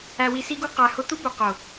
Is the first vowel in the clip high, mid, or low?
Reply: low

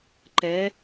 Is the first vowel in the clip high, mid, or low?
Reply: mid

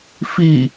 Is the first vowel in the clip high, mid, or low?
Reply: high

